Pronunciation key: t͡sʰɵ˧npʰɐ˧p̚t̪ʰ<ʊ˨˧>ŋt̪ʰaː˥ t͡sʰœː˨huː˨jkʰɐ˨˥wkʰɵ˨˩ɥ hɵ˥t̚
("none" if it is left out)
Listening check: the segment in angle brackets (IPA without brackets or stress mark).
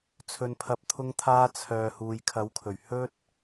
ʊ˥